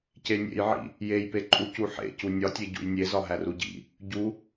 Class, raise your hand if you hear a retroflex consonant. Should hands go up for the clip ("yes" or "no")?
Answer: no